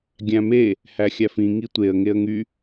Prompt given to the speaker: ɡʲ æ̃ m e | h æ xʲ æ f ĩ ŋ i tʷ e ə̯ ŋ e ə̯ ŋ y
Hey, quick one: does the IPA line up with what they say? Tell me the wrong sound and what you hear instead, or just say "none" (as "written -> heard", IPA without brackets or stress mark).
none